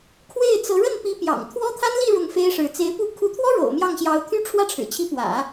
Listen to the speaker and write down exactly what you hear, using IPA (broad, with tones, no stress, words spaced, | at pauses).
kʰwe˥˩ɪ̯t͡sɤ˧˥ ɻə˥˩npi˧˥pjɑ̰˨˩ŋ t̪ʰwɔ˥t̪ʰa˥nli˥˧ ɻʊ˥˩ŋfe˥ɪ̯ʂɻ̩˧˥ t͡se˧˥ɪ̯pu˥˩ kʰu˧˥t̪ʰwɔ˥ ɻo̰˨˩ʊ̯mjɑ˥˩ŋɕjɑ˧˥ʊ̯ t̪ʰy˥ʈ͡ʂʰwä˥ʈ͡ʂʰɻ̩˨˩t͡ɕʰi˧˥ pwä̰˨˩˦